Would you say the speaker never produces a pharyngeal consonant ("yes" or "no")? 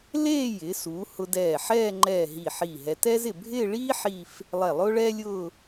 no